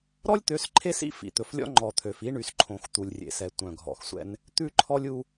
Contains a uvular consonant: no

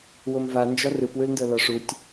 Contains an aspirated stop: no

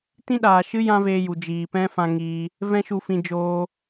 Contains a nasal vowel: yes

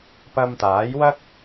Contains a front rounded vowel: no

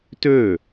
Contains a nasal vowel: no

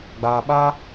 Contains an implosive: yes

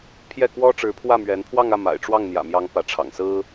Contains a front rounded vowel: no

